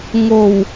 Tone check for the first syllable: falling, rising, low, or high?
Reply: low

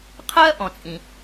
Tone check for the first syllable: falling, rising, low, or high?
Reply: high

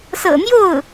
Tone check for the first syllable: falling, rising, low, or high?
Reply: low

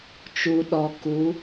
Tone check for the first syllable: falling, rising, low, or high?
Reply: low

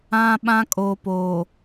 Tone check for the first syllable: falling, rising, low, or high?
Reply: high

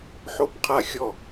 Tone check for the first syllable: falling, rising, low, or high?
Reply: falling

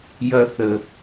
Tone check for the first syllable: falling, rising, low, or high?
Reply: high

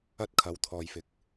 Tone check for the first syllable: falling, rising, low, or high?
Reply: high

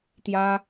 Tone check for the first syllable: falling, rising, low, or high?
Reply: high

